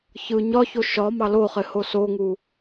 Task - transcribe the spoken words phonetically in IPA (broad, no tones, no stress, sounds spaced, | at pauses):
ç ɯ ɲ ɒ ç o ʃ ɒ m ɑ l o χ ɪ h o s o ŋ u